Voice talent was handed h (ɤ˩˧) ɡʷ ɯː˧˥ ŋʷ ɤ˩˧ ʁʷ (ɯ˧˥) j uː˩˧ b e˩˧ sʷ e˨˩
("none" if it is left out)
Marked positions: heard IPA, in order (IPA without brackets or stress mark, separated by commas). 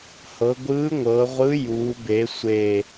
ɤ˩˧, ɯ˧˥